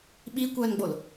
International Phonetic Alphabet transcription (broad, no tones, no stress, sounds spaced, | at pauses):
ɓ i kʷ œː n ɡ͡b o l